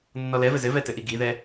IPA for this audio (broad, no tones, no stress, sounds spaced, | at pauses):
nː ɔ l ɛ v ɘ z ɘ v ɛ t ɘ ʔ i ɡ i ð ɛ